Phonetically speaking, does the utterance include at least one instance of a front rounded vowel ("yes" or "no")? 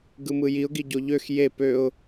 yes